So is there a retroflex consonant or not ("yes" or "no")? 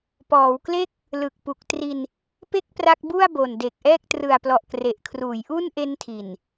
no